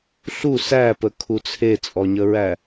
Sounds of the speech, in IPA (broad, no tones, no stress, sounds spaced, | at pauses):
ɬ u s æ p ə kʰ u t͡sʰ e t͡sʼ ɔ ɲ ə ɹ æ